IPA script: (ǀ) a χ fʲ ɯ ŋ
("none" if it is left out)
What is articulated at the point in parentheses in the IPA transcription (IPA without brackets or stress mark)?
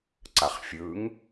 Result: ǀ